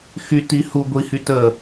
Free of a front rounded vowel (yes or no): no